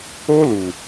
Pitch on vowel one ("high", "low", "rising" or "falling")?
high